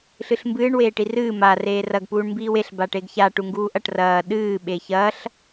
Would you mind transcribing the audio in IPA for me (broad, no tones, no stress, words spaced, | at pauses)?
ɬɨɬmbɨːɳ weːʈirɨː ma reːrɐɡ puːɳmbiːweɬ baʈeɡça ʈuŋɡuːʔɐʈ rɐː ɗɨː ɓeçɐɬ